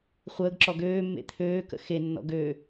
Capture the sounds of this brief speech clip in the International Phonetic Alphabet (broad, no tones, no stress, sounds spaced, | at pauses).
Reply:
χʷ əː ɡ ǁ ɔ ɡ øː mː ḛ t̪ʰ øː k ə̰ x e nː ɔ̰ ɡ ø